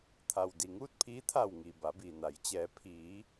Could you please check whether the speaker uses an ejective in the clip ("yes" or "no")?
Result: no